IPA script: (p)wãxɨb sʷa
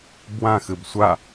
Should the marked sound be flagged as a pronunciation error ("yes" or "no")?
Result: yes